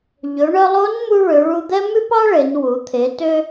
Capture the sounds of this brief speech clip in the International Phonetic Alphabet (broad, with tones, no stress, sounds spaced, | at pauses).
ʎ ɵ˩˧ ɳ œ˧ lˠ o˧˥ n m u˧ ɭ ø˩˧ ɭ u˧ d̪ ɛ˥ m ʉ˥ p ɑ˥ ɭ e˩˧ n w u˩˧ t̪ʰ e˩˧ t ø˧